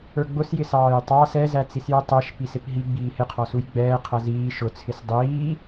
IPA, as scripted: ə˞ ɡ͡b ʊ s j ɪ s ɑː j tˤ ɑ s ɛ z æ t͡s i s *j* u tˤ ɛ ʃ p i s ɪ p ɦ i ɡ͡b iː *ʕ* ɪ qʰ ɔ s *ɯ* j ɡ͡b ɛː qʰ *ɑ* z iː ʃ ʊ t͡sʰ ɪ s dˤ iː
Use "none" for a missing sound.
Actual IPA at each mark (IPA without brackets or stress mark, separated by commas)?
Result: j, h, u, ʌ